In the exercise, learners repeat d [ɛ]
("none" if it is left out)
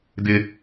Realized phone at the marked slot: ɪ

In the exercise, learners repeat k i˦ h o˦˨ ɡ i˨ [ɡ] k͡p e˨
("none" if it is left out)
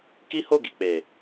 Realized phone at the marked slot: none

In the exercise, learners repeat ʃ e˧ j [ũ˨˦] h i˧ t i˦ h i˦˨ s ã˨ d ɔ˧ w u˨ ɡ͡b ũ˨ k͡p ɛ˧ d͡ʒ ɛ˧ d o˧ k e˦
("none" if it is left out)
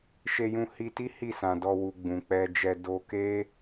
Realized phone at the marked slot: ũ˧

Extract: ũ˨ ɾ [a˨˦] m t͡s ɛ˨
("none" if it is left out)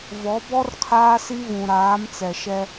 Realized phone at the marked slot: aː˨˦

